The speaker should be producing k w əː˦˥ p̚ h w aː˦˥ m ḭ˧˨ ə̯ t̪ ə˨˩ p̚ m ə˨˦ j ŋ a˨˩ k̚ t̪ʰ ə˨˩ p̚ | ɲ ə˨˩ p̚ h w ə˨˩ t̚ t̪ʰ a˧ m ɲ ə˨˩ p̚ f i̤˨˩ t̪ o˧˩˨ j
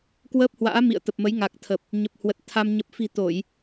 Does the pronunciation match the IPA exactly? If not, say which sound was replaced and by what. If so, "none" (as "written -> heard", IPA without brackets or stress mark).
aː˦˥ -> a̰ː˧˥